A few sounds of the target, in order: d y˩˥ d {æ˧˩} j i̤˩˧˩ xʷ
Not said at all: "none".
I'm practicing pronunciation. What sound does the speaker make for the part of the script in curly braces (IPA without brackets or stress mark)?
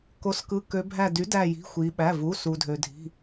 æ˧˩